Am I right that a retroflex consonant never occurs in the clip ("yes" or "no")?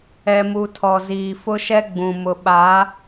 yes